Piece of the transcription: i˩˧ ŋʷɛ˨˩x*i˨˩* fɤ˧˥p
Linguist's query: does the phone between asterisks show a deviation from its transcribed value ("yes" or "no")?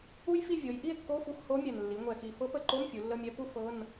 no